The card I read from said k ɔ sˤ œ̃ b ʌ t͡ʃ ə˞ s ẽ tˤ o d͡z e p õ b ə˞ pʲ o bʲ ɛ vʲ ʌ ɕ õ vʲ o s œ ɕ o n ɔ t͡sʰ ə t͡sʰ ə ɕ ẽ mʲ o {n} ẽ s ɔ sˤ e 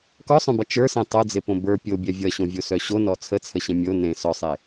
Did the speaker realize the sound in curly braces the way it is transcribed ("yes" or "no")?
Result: yes